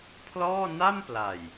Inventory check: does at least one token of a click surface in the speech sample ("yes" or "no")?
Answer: no